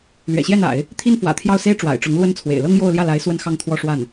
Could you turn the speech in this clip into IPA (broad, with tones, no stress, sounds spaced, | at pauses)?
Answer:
l ɥ ɛ̰˨˩ ɕ j ɛ˥˩ n a̰˨˩˦ ɪ̯ | t̪ʰ i˥ n f w ä̰˨˩ t̪ʰ j ɑ˥˩ ʊ̯ s e˥ ɪ̯ ʈ͡ʂ w a̰˨˩ ɪ̯ ʈ͡ʂ ʊ˧˥ ŋ l w ə˥ n t͡sʰ w ḛ˨˩ ɪ̯ l ɤ˥ ŋ j o˥˧ ʊ̯ l j ä˥˩ l a˧˥ ɪ̯ s w ə˥˧ n x ɑ˥˧ ŋ t̪ʰ w ɔ˥˧ ʂ w a˥˩ n